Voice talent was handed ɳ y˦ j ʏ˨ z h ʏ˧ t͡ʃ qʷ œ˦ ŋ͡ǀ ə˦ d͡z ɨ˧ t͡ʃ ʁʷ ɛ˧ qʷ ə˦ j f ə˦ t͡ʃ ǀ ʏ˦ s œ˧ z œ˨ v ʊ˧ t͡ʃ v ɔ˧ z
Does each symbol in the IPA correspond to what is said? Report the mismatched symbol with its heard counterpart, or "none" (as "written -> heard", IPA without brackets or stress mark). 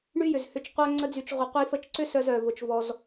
ɨ˧ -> y˧